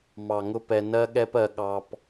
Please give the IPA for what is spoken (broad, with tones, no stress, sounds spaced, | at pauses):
m ɑ˨ ŋ ʊ˦ p ɛ˧ n ɜ˦ ɠ ɛ˦ p ɜ˧ ɠ ɑ˧ p